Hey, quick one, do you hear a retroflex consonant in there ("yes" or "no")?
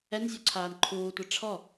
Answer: yes